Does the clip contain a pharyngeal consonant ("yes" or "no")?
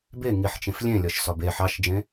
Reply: yes